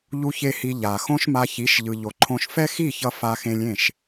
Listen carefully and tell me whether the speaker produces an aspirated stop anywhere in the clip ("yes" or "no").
yes